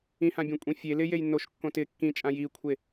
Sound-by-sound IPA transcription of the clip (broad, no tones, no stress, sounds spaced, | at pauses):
ĩ h ã bʲ õ kʷʼ ĩ fʲ e l ɪ j e j nː o ʃ kː õ t ɪ kː ĩ t͡ʃʼ ã j i kʷʰ e